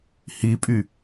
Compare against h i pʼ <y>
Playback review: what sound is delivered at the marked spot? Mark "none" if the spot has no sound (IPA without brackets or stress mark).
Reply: y